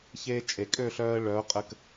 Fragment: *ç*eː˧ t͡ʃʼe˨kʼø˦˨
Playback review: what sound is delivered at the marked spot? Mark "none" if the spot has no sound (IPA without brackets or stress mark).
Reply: ç